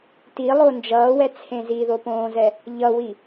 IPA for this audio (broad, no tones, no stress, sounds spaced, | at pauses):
t i lˠ o n d͡ʒ ʌː w ɛ t͡sʰ ẽ z i ð o p õː z ɛ | ʎ ʌ w i